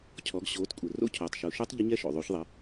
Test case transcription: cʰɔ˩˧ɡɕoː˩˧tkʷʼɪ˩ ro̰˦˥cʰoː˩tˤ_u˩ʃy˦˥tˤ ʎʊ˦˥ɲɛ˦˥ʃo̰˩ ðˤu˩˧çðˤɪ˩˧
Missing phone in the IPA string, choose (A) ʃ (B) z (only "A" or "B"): A